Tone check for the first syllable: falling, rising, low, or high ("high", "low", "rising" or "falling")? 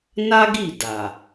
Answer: high